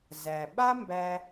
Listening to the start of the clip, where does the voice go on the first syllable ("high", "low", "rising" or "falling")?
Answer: low